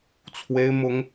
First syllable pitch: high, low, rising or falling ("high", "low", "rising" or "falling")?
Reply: high